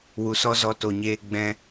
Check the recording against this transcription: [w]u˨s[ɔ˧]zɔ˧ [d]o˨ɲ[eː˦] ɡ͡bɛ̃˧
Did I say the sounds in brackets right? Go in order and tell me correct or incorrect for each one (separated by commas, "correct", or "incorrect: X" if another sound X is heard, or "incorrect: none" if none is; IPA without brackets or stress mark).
correct, incorrect: ɔ˦, incorrect: t, incorrect: eː˧